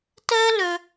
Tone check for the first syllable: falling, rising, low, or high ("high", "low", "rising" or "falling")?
high